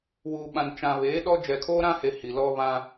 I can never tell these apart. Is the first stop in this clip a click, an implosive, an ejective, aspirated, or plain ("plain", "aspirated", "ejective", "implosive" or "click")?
implosive